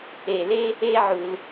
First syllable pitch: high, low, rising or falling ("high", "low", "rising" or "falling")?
low